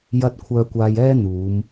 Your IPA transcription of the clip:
j ɐ˧ t̚ kʷʰ œː˧ kʷ aː˧ j ɛː˥ n̪ uː˨˧ m

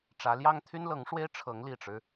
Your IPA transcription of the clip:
ʈ͡ʂ ä˧˥ l j ɑ˥ ŋ t̪ʰ y˥ n l ɤ˧˥ ŋ ʂ w e˥ ɪ̯ ʈ͡ʂʰ ɤ˧˥ ŋ l i˨˩ ʈ͡ʂ ɻ̩˦

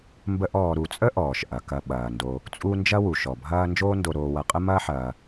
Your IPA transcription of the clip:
m b ə˦ ʔ ɔː˨ ɾ u˨ t͡sʼ ə˥ ʔ ɔː˩ ʃ ʔ ɐ˩ k ɐ˨ ɓ ɐː˩ n d o˨ | t͡sʼ u˦ n d͡ʒ ɐ˥ w u˩ ʃ ɔ˩ bʱ ɐː˦ n d͡ʒ oː˦ n d o˨ ɾ oː˨ w ɐ˨ qʼ ə˥ m ɐː˥ ħ ɐː˨

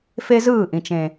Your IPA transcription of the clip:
f e˦ z ɯː˦˨ ʔ ĩ˨ t͡ʃ ẽ˨

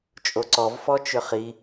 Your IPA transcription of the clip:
t͡ʃʼ o ǀ ɔ v f ɔ t͡ʃ ʏ χ i

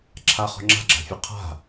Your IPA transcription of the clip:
ǁʰ a χ ɔ̤ ŋ͡ǁ a̤ ɡ͡ǁ a̤ fʲ ɔ qʰ a̤

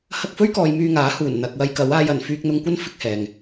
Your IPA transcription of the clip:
h ɐ˧ k̚ f ɵ˥ ɥ k ɔː˨ j m yː˧ ŋ aː˨˥ h uː˨˩ n n̪ ɐ˨ k̚ w ɐ˥ j k ɐ˨˥ w aː˧ j ɐ˨˩ n f yː˧ k̚ n̪ ʊ˧ ŋ kʷ ɐ˥ n f ɪ˥ k̚ h ɛː˨ ŋ

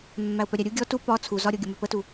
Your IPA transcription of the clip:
mː æ ʊ̯ p œ ɾʲ æ ɾʲ u ɡʲ ɔ t u p ɒ t͡sʰ u z ɒ ɾʲ ɤ ɡʲ ə m œ p ə t u

